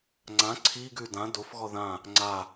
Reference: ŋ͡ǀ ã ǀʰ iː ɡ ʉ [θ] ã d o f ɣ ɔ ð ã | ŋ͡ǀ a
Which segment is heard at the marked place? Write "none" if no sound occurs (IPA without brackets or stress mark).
d